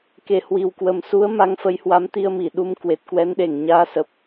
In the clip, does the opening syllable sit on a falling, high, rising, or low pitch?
low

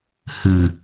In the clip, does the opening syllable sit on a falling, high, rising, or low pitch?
low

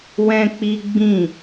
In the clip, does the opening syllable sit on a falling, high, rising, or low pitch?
high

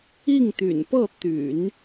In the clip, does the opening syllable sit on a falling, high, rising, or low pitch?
falling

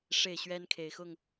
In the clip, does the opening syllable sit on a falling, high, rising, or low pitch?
falling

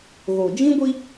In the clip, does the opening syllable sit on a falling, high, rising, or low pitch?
low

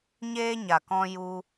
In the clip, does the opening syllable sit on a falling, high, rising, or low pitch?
high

